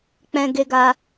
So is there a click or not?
no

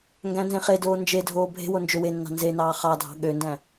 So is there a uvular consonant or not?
yes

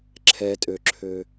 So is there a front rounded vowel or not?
yes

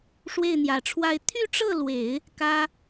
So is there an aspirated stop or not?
yes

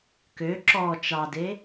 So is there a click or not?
yes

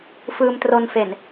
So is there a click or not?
no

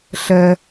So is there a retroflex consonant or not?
no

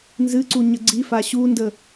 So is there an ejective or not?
no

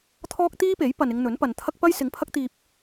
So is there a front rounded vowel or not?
no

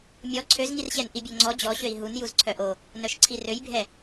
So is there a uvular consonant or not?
no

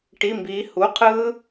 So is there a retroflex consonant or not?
yes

